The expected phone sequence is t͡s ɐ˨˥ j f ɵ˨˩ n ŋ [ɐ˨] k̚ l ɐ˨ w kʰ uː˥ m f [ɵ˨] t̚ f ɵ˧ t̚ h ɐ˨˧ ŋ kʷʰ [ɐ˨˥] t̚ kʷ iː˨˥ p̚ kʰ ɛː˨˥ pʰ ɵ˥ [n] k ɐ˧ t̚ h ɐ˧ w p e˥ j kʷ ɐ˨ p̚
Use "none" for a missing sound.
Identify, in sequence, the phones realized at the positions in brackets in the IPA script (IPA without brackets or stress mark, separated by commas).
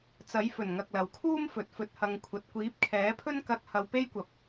ɐ˨, ɵ˨, ɐ˨˥, n